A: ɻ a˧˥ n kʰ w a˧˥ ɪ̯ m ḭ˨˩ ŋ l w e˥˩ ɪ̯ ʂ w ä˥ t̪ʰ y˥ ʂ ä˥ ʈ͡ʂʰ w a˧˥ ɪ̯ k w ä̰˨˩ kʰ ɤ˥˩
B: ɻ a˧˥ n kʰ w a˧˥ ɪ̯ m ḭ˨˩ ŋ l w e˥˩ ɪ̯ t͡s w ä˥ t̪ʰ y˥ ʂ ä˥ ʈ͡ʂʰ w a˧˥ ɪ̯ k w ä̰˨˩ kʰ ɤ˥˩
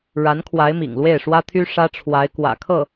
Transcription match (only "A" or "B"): A